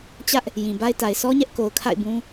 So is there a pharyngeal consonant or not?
no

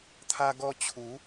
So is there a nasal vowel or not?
no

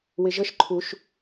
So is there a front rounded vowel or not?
no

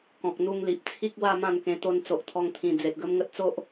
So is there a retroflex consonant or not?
no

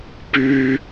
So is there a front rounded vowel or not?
yes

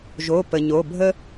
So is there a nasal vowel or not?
no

